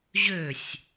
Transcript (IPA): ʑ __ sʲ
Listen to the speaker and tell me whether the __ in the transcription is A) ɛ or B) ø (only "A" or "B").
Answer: B